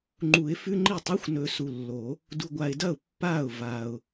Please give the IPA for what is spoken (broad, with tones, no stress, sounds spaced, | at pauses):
ŋ͡ǃ u˨˩˦ ɪ̯ f ʉ˧˥˧ ŋ͡ǃ i˥˩ tˤ a˧˥˧ xʷ n ɵ˨ s u˨ lː o˨˩˦ | d u˨ ɡʷ a˨ ɪ̯ d ɐ˥˩ ʊ̯ pː a˥˩ ʊ̯ v a˨ ʊ̯